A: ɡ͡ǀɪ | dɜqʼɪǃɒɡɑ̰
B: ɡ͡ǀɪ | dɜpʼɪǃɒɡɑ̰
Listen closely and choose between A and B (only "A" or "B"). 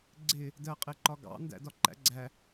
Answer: A